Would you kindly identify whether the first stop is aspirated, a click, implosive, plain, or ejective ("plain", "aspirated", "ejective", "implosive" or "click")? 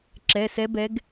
click